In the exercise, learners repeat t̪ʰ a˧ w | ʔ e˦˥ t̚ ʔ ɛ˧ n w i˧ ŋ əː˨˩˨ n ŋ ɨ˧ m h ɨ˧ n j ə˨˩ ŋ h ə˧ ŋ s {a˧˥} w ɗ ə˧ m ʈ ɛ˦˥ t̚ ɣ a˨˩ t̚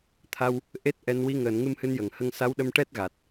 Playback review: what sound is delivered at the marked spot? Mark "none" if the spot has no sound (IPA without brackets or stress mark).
a˧˥